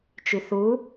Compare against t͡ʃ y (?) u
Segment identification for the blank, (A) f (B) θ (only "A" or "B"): B